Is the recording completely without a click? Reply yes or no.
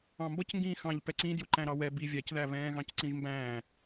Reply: no